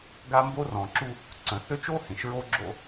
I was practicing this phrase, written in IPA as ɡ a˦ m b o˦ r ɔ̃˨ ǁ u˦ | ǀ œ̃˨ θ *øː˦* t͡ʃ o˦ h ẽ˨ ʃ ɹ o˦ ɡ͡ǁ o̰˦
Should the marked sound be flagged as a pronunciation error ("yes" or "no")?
yes